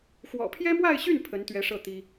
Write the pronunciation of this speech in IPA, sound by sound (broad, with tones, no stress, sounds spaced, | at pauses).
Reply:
x w ɔ̰˨˩ pʰ j ɛ˥ m w a˥˧ ɪ̯ ɕ y˥˩ n pʰ ə˧˥ n t̪ ɥ ɛ˧˥ ʂ ɤ˥˩ t̪ i˥